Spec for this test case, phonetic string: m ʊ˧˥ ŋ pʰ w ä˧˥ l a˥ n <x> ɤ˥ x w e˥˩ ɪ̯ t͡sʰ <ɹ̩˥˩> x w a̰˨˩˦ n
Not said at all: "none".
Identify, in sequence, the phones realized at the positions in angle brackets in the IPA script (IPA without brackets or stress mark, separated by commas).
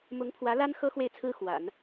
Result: x, ɹ̩˥